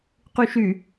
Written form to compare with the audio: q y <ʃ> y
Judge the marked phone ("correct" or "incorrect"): correct